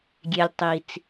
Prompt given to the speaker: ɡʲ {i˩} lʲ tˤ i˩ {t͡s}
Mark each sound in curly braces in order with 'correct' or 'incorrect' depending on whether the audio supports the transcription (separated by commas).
incorrect, correct